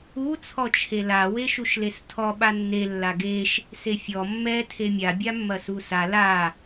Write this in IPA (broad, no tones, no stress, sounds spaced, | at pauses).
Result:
u t͡sʰ ɔ t͡ʃʰ e l a w e ʃ u ʃ l e s tʰ ɔ ɓ a nː e lː a ɡ e ʃ | s e fʲ ɔ mː ɛ tʰ e mʲ a bʲ a mː ɐ s u s a l a